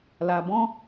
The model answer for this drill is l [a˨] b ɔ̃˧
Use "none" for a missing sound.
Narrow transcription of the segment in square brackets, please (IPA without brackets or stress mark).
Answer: a˨